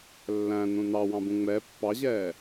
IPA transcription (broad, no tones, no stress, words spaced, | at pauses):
lːæ̃ nũnɑwɑ̃bũ ŋ͡mɛ pːɑʑɛː